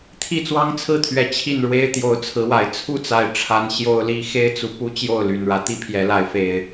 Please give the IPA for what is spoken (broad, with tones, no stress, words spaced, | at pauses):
t̪ʰi˥˨t͡swɑ˦ŋt͡sʰɹ̩˥˨t̪ʰɥɛ˨˩ t͡ɕʰi˥˨nɻwe˦ɪ̯ t̪jo˨˦ʊ̯t͡sʰɹ̩˨˦wa˨˩ɪ̯ t͡sʰu˥˨t͡sa˨˩ɪ̯ ʈ͡ʂʰa˨˦n ɕjo˦ʊ̯li˦ xe˦ɪ̯t͡su˨ pu˦t͡ɕjo˥˨ʊ̯ly˨˩nɻä˦ t̪i˦pʰjɛ˨˦la˨˦ɪ̯fe˨˩ɪ̯